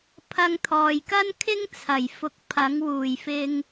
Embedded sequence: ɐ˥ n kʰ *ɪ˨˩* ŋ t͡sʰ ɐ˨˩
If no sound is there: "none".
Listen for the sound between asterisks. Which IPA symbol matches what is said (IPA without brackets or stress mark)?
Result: ɪ˥